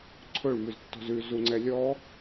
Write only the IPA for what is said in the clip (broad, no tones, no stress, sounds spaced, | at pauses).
ǀʰ ɵ ɭ m ʉ z tː ɔ̤ z ʉ z u ŋ͡ǀ ɛ lʲ ɔ